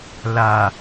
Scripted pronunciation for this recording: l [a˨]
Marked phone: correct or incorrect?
correct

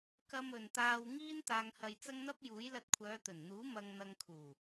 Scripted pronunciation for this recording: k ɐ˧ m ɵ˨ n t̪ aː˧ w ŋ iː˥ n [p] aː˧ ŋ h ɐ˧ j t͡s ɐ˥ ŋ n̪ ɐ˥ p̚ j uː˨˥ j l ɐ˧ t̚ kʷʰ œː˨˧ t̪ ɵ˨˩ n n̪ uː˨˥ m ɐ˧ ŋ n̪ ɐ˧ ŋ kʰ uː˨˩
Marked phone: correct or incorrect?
incorrect: t̪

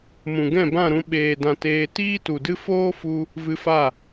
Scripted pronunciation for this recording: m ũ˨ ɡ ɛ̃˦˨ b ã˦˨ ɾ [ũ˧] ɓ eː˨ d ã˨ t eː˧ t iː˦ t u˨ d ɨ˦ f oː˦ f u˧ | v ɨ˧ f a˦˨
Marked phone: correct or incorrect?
correct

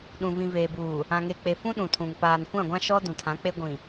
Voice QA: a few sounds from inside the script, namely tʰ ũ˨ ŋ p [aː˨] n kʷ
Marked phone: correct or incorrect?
correct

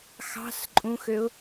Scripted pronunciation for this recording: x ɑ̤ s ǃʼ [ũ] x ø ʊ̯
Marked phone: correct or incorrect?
correct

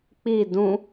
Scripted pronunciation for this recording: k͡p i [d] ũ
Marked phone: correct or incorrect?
correct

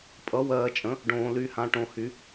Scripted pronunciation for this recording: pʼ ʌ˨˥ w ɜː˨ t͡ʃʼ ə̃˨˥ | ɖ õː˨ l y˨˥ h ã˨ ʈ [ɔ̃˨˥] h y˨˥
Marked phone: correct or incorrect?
incorrect: õ˨˥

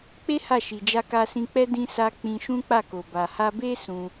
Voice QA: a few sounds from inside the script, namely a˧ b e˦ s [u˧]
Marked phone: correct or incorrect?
incorrect: ũ˧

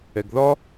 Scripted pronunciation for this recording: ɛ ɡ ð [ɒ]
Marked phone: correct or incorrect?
correct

